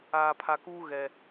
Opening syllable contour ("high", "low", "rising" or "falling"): low